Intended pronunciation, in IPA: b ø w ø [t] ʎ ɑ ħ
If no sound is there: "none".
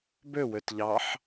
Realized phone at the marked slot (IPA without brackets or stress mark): t